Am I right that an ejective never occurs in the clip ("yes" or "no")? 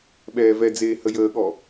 yes